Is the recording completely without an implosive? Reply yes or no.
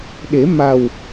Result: no